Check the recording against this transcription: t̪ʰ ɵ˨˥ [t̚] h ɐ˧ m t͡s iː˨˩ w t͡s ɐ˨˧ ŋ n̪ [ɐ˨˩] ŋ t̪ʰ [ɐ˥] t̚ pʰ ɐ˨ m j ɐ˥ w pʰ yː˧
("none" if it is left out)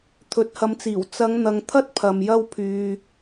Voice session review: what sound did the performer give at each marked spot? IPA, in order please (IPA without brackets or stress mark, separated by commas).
t̚, ɐ˨, ɐ˥